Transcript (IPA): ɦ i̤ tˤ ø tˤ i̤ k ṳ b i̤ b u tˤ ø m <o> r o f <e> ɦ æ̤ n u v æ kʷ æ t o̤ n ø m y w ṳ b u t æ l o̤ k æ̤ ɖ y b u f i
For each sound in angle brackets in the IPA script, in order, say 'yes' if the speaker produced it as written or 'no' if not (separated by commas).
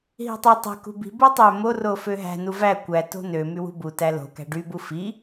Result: yes, no